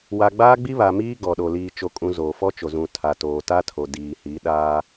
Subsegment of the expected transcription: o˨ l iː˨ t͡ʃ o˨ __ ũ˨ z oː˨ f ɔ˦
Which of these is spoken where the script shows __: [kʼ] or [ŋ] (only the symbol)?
kʼ